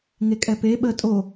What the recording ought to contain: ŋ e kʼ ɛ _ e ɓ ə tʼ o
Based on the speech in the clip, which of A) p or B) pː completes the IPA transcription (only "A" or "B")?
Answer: A